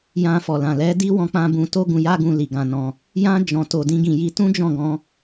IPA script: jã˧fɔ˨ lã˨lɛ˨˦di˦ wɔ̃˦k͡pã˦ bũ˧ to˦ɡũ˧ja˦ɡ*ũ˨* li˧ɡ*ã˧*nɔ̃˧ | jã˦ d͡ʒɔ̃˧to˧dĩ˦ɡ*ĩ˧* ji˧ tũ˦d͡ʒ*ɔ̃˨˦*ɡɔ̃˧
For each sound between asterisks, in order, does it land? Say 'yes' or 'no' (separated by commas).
no, yes, yes, no